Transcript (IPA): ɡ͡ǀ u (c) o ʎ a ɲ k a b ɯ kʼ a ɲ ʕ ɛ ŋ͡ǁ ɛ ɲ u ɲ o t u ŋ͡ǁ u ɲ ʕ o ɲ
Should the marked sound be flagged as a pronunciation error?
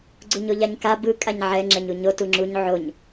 yes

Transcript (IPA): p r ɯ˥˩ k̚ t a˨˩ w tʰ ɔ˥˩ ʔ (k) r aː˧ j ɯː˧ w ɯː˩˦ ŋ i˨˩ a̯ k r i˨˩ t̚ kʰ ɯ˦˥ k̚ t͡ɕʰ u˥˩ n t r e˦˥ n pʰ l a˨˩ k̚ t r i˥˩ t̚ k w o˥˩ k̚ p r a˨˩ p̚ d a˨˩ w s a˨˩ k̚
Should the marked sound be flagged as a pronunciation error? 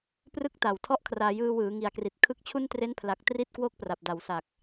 yes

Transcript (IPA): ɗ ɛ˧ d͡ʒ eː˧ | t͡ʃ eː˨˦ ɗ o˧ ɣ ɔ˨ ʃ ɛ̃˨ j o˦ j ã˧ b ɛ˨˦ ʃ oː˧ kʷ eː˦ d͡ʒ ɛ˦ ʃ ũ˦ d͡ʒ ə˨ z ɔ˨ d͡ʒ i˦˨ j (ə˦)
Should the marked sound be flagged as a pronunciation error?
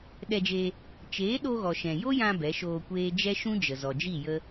no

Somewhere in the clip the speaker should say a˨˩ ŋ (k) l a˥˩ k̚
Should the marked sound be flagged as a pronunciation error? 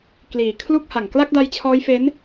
no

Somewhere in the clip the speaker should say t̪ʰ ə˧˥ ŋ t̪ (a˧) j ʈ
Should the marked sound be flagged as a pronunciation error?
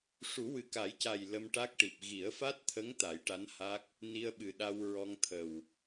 yes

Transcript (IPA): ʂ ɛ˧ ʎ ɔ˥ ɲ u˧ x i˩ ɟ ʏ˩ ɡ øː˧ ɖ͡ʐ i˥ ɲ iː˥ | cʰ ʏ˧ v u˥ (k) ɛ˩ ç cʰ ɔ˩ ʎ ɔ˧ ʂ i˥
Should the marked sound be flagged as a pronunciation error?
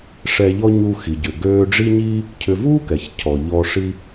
no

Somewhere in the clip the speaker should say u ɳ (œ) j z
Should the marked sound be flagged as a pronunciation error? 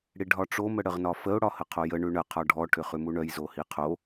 no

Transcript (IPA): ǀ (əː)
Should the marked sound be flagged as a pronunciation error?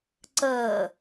no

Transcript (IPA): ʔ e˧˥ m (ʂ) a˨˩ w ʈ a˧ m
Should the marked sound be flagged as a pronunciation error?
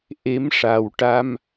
no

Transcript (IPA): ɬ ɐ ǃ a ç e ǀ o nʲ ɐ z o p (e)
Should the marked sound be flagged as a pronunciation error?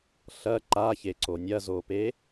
no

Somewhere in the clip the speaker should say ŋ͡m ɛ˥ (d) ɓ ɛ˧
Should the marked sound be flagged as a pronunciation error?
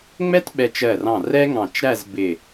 yes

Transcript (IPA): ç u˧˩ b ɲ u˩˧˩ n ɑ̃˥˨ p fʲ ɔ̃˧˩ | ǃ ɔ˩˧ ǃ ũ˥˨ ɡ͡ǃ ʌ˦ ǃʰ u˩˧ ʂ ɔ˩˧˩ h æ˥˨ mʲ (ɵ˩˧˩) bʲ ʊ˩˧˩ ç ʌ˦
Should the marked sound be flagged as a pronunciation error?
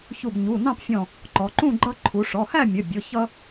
yes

